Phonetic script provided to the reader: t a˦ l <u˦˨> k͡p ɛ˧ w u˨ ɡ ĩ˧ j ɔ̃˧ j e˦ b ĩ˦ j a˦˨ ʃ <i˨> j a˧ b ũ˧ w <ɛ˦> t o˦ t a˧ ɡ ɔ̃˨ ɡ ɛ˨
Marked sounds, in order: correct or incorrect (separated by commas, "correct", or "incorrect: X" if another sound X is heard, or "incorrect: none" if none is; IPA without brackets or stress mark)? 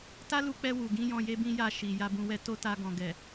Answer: incorrect: u˧, correct, correct